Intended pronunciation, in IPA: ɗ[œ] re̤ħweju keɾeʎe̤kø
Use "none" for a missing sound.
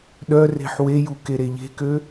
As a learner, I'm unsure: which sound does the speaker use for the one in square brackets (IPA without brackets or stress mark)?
œ